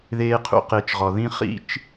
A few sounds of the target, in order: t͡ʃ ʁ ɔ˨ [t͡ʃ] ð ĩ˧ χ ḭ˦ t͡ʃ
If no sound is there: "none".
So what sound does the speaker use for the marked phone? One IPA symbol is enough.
none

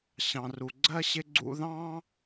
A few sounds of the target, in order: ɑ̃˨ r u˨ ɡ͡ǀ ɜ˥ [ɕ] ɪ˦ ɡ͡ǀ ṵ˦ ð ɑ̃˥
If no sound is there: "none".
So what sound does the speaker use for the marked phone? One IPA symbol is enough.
ɕ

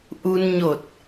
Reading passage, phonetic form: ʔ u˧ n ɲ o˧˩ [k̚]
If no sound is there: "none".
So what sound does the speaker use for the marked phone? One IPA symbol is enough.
t̚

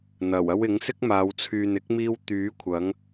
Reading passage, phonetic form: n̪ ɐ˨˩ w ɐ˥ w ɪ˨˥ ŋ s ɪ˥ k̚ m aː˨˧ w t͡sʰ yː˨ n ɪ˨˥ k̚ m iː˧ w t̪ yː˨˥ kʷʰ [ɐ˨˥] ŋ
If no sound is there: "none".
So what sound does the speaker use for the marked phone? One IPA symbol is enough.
ɐ˨˥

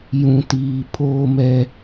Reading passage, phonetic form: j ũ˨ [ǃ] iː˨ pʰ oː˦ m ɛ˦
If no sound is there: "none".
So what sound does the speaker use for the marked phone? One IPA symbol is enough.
t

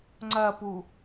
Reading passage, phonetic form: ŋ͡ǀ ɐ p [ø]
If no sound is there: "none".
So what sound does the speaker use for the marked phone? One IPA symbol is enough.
u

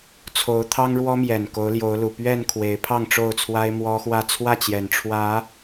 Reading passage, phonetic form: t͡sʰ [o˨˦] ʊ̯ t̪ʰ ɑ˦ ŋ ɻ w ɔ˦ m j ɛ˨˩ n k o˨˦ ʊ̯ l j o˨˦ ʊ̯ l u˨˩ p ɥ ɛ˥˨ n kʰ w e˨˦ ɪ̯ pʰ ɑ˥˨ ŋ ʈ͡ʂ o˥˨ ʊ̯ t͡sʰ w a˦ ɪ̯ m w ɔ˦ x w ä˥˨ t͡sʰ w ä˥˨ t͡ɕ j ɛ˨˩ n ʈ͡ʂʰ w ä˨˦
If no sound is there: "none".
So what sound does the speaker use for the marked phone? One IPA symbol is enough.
o˨˦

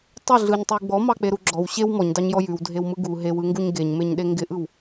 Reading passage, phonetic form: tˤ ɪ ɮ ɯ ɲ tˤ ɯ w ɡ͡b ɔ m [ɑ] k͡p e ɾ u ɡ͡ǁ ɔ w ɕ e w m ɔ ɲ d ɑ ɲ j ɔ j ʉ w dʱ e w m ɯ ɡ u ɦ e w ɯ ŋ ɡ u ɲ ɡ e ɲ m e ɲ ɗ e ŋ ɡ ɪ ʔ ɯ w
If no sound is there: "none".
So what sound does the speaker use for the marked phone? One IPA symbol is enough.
ɑ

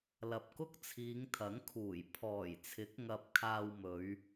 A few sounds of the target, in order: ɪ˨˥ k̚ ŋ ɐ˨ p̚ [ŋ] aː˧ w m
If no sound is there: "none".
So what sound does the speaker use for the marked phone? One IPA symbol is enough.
kʰ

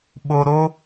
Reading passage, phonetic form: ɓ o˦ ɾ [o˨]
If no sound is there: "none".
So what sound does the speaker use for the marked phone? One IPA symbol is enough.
o˦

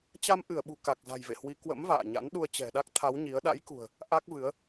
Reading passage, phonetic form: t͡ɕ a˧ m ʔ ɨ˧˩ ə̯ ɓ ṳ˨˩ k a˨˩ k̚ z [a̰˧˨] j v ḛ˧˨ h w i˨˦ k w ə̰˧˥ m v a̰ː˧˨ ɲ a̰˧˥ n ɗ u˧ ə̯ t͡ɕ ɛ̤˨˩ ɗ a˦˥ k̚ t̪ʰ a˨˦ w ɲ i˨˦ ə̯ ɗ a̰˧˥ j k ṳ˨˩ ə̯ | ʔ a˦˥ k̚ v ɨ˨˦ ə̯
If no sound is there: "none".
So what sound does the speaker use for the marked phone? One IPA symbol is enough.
a̤˨˩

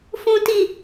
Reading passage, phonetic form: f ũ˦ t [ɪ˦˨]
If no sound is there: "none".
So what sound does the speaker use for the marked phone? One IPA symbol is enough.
i˦˨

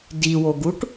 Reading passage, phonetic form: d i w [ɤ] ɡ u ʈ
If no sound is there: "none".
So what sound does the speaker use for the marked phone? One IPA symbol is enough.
o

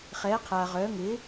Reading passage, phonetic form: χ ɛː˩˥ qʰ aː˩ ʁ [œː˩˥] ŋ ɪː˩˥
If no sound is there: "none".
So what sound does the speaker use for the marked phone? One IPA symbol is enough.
œː˩˥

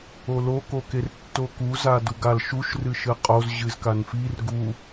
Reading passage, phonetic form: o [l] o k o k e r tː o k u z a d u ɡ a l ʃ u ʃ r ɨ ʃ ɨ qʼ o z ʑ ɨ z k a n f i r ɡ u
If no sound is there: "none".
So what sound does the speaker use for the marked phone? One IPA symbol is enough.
l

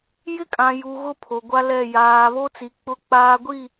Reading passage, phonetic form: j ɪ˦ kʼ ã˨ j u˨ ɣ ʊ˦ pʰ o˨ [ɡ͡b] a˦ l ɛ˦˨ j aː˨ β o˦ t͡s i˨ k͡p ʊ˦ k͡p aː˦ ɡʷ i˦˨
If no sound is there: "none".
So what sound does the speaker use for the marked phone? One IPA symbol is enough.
ɡʷ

